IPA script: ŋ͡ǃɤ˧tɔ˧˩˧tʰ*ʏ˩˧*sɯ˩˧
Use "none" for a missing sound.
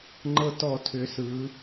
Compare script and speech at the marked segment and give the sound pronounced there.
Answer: ʏ˩˧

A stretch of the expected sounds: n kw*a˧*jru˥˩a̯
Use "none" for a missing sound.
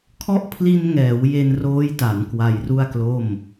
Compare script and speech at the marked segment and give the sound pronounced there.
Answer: a˧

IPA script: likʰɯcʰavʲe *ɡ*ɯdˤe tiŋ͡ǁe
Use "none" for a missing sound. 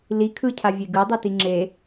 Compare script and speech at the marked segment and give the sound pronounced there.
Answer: ɡ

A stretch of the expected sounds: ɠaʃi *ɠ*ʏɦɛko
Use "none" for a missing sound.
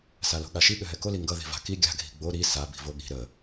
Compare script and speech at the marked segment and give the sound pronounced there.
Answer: ɠ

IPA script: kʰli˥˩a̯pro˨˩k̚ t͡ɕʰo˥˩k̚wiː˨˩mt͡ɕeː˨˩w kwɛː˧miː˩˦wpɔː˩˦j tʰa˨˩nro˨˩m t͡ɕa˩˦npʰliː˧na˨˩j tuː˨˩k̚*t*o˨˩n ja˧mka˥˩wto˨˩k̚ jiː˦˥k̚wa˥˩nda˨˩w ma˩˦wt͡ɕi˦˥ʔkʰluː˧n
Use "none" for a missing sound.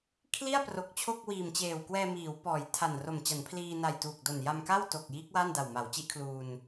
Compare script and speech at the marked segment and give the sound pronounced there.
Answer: d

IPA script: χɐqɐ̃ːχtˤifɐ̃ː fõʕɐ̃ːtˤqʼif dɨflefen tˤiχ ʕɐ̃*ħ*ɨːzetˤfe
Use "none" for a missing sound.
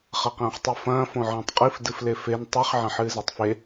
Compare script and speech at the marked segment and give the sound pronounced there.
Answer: ħ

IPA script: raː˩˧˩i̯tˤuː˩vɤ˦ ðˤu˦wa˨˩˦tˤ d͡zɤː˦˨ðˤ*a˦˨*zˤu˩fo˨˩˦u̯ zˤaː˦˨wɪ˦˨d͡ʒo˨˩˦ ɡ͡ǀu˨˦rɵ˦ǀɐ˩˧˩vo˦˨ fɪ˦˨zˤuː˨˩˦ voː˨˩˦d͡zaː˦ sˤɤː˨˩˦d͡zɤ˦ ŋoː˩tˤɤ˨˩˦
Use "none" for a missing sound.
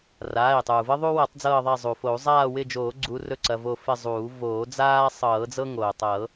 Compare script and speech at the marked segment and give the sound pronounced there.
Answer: a˦˨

